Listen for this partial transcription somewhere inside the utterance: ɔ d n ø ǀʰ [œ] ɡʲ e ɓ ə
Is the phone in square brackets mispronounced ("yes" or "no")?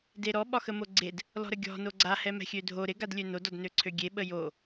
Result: yes